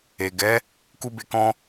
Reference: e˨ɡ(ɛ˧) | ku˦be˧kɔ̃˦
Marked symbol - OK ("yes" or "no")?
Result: no